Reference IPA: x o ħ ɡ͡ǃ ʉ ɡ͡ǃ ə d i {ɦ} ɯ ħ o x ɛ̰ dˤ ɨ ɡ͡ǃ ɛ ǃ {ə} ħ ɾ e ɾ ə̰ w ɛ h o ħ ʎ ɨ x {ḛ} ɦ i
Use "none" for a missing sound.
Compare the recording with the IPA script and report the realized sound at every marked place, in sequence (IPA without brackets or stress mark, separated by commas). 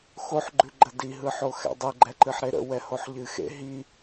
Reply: ɦ, ɨ, ḛ